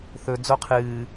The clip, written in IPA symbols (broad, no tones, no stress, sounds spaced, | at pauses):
θ ɵ d͡z o qʰ ɨː